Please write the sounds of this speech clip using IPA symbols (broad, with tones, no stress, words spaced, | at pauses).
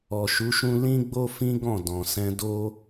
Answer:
ɔ˨ʃu˨˦ʃũ˦ lĩ˦ɡ͡bo˦fĩ˦ ɡɔ̃˦˨ dɔ̃˨sɛ̃˧ do˦